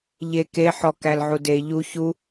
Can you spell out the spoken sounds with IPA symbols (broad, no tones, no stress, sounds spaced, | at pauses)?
ʎ e k e ħ ɔ k æ l ʕ u d e ʎ u ç u